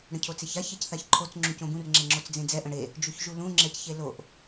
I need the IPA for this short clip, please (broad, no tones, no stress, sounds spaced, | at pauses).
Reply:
ɽ ə̃ cʰ o t͡s e ç a ç ɛ c θ a ç ǃʰ o t͡s ŋ͡ǁ ũ c õ b ũ r ŋ͡ǁ ɛ ŋ͡ǁ o t͡s d͡z ẽ d͡z ɛ ʔ ə̃ ɽ e | d͡ʒ u ç ʒ u l ũ ŋ͡ǁ ɛ c ç e l o ʔ